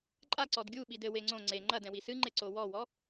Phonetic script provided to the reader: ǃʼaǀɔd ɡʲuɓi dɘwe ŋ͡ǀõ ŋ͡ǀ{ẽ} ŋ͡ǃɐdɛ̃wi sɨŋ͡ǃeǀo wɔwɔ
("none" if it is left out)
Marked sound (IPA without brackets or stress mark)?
e